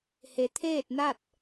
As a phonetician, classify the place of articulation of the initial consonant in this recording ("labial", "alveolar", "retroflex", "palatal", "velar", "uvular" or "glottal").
glottal